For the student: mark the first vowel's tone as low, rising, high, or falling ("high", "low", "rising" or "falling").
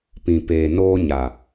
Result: low